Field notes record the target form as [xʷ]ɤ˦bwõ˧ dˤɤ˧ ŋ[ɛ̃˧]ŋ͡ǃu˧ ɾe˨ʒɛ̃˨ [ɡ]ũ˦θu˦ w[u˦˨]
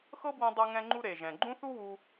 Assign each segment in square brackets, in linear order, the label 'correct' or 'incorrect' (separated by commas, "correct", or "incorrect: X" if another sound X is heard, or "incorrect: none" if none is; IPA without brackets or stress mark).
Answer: incorrect: x, correct, incorrect: ɡ͡ǃ, incorrect: u˧